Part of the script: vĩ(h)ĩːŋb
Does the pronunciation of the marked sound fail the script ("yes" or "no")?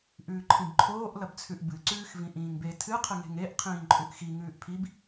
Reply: yes